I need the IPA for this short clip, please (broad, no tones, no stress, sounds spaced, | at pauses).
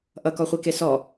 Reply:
ʔ ʌ k ɔ χʷ i k e s ɔ